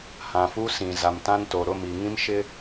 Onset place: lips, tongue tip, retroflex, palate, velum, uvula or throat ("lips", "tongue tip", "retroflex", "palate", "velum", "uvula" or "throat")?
throat